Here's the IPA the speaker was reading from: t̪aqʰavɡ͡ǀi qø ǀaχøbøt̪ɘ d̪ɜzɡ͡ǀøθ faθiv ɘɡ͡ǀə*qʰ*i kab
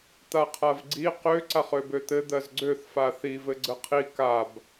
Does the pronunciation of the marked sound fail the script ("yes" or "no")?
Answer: no